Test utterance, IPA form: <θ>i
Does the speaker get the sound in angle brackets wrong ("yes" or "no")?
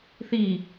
no